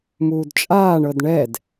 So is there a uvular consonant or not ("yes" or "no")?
no